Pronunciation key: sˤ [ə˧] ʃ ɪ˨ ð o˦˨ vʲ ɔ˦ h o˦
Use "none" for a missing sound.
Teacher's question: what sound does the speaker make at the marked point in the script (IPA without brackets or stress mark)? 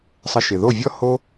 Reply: ə˧